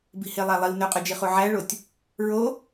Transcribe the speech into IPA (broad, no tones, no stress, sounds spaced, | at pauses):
b i̤ h e lˠ æ lˠ i w n ø qʼ y d͡ʒ i χ u ʕ æ ɭ o tʲ | ɹ o